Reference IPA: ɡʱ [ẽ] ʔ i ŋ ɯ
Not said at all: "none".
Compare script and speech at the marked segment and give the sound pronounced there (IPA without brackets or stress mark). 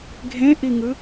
ẽ